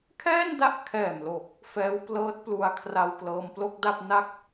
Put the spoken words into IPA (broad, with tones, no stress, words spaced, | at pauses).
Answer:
kʰɛː˥˩nda˥˩ʔkʰɛː˨˩mlo˨˩k̚ | fɛː˦˥wplɤː˦˥t̚plu˧a̯ kʰra˧wklɤː˧mplo˥˩k̚da˥˩p̚ na˥˩k̚